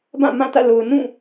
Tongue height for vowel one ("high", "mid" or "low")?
low